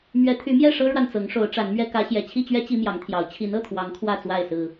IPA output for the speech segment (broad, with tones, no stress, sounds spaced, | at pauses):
m ɥ ɛ˨˦ t̪ʰ y˨˦ m j ɛ˥˨ ʂ ɤ˦ ɻ w a˨ n t͡s ɤ˨˦ ŋ ʂ o˨˦ ʊ̯ ʈ͡ʂ a˨˦ n m ɥ ɛ˦ k ä˨˦ ɕ j ɛ˨˩ t͡ɕʰ i˥˨ t͡ɕ ɥ ɛ˦ t͡ɕ i˦ m j ɑ˨˦ ŋ t̪ʰ j ɑ˨˦ ʊ̯ t͡ɕʰ i˨˦ n ɤ˥˨ t̪ʰ w ɑ˨˦ ŋ kʰ w ä˥˨ t͡s w a˥˨ ɪ̯ s ɹ̩˨˩